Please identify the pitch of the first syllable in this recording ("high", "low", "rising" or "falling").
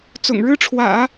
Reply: low